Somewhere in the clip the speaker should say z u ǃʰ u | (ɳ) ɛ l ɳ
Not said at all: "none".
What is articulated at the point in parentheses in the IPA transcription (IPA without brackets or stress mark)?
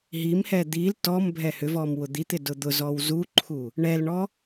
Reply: ɳ